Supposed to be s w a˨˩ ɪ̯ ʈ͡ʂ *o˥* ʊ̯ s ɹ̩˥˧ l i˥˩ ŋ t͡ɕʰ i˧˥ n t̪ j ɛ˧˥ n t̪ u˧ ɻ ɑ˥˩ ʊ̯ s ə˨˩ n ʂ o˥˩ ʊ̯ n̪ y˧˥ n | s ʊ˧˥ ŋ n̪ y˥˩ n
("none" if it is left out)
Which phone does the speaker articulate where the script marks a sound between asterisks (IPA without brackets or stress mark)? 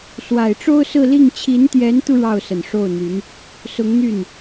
o˥